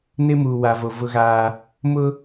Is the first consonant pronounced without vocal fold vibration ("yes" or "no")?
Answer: no